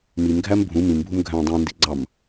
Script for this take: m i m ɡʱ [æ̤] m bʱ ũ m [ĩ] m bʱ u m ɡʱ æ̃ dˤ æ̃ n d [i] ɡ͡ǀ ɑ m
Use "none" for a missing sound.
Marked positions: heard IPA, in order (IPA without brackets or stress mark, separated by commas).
æ, ĩ, i